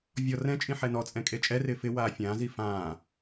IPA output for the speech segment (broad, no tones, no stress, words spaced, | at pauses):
vʲɔ rɛ̃t͡ʃʼĩ ħɛnɔt͡sʼɛ̃ kʼet͡ʃʼɛrɪː fɪ waːfʲãːzi fãː